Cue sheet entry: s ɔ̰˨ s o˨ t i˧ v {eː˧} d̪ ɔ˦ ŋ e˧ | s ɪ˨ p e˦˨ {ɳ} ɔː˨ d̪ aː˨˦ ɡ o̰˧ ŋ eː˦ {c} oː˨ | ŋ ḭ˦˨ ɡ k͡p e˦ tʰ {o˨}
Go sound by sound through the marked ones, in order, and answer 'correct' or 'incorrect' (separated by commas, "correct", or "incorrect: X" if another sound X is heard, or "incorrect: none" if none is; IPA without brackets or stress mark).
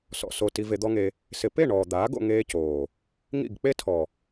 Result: incorrect: e˧, correct, correct, incorrect: ɔ˨